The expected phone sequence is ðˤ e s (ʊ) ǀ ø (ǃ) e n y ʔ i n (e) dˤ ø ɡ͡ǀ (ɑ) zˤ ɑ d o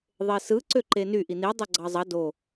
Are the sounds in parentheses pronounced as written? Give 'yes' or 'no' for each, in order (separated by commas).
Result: no, yes, no, yes